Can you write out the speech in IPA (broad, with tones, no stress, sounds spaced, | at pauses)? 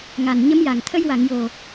ŋ a˨˩ n ɲ ə˧˥ m j a˨˩ ŋ t̪ʰ ə˧ j w a˨˩˨ ŋ j o˨˩